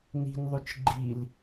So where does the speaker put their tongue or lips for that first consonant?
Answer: tongue tip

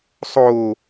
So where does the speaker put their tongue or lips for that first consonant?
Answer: tongue tip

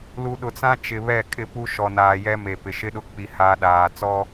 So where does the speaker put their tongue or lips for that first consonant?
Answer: tongue tip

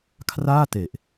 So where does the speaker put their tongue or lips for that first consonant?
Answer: velum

